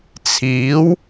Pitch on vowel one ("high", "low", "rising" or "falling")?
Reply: rising